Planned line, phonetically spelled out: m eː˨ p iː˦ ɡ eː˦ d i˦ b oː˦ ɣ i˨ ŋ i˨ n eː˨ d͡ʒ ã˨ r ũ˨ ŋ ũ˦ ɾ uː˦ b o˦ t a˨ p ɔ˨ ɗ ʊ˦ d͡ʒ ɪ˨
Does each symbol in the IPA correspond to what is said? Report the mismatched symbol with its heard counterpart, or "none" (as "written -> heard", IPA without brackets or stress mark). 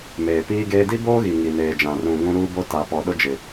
none